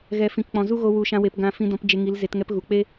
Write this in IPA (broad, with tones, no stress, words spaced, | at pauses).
ɣɛ˨ fĩ˨kk͡pɔ̃˨zu˦ɣo˧ wu˨ʃã˧we˨pɡã˧ fĩ˧dɔ̃˧p d͡ʒe˧ŋi˨˦lze˨˦t ŋɛ˧pɣu˨k͡pe˦